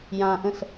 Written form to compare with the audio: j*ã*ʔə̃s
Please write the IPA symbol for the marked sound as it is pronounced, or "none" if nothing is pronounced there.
ã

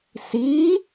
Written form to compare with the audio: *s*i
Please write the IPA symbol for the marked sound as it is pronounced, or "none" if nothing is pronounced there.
s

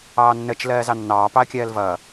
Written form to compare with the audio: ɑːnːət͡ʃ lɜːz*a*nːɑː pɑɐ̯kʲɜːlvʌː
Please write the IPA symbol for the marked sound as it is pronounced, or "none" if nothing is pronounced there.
ɑ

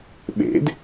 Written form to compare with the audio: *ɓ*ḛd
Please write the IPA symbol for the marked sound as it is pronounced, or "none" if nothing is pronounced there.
ɓ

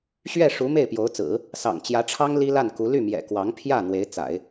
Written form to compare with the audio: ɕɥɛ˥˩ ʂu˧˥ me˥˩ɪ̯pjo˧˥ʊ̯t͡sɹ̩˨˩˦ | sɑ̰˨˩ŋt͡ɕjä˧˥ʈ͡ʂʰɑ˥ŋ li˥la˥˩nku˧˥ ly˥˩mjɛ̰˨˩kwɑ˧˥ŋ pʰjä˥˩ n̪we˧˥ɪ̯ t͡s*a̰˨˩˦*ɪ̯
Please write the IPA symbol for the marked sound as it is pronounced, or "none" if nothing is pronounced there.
a̰˨˩˦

